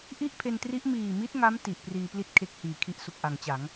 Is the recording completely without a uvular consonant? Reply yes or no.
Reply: yes